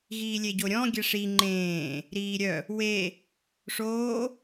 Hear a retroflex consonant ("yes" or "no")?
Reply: yes